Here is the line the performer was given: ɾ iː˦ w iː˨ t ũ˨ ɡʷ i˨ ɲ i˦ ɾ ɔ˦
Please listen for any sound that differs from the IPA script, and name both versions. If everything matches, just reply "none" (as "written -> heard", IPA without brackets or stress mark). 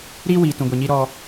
none